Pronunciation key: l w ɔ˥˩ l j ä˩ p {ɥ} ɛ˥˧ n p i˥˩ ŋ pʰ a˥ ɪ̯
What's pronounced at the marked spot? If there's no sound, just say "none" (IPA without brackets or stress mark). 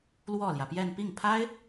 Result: j